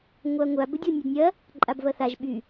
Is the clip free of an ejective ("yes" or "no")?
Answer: no